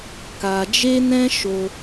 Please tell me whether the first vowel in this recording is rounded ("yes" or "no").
no